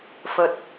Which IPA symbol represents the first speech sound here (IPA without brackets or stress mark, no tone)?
f